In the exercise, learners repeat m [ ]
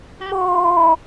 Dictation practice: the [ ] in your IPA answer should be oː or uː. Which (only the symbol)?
oː